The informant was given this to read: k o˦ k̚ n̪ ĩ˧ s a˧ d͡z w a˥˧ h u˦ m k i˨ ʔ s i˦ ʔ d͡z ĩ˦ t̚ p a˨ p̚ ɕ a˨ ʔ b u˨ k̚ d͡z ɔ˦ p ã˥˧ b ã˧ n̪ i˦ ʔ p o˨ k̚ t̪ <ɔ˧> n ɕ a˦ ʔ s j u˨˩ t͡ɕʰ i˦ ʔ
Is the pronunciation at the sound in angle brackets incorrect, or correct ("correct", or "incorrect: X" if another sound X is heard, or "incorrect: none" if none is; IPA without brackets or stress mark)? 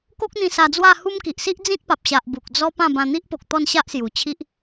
incorrect: ɔ˥˧